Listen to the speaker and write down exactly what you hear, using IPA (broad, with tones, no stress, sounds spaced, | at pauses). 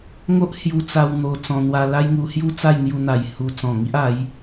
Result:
ŋ o˦ ʔ h j u˧ t͡s a˧ w n̪ o˧ t͡s ɔ̃˧ n̪ w a˧ l a˦ j ŋ u˧ h j u˥˧ t͡s a˥˧ j n̪ j u˧ n̪ a˨˩ j h u˧ t͡s ɔ̃˨˩ ŋ i˦ ʔ a˨˦ j